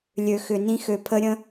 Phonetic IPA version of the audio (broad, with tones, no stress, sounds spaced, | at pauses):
lʲ ø˨ x ʏ˨ n ĩ˧ x ø˨ pʰ ə˧ ɾʲ ə̃˧